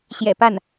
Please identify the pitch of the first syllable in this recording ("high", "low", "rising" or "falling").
low